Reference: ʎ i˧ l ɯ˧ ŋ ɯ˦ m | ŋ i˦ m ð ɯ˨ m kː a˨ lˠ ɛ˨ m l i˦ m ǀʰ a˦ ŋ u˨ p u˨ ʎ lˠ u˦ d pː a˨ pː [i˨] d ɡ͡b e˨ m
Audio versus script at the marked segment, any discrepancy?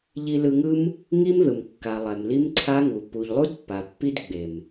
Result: yes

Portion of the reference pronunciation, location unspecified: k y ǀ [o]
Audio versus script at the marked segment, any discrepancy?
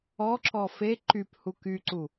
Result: yes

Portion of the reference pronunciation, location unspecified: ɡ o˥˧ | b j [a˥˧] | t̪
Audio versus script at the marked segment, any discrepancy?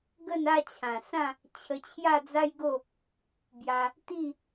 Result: yes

